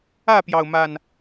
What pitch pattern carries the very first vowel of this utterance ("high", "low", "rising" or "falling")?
falling